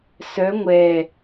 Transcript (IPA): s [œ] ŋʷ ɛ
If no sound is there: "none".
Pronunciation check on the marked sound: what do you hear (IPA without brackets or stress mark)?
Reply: œ